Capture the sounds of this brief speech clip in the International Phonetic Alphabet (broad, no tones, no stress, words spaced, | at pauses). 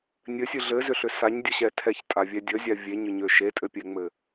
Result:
nʲɘsʲɨ ɮɘzʏɬʏ saɲdʲəɕɛ tʰɛçtʼavʲɛ dʲəzʲa vʲeɲʏɲø ʃetʼɘpʲɛŋ͡mɘ